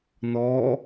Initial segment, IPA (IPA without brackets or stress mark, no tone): n